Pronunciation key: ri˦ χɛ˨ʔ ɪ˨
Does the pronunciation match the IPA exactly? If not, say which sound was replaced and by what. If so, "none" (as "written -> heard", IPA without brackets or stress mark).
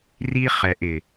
none